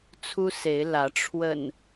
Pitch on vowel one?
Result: high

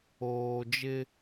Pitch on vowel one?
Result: low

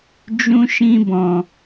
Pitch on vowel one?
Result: high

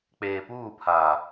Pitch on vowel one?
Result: low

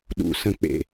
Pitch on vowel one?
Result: low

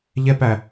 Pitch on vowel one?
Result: high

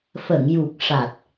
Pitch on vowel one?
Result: low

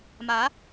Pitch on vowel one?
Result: rising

